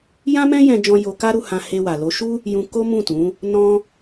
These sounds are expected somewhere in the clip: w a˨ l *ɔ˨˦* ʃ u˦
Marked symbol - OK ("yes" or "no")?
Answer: no